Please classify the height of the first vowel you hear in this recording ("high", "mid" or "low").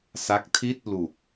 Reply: low